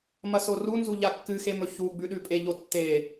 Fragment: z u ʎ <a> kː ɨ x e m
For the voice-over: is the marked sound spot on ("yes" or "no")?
yes